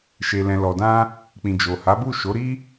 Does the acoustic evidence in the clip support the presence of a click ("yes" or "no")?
no